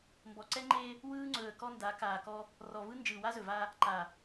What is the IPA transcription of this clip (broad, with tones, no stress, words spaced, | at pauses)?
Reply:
mbɔ˨ǀɛ˦ŋ͡ǃeː˦ | wɯː˦ŋ͡ǀɵː˨ə̯ kɔ˦nda˨˦ kaː˨kɔ˦ | rɔ˨vɯ˦ nd͡ʒɯː˨wa˦zɵ˨va˦ | ǃa˨